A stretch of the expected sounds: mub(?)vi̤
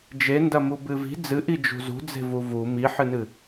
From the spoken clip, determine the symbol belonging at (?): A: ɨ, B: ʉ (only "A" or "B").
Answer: A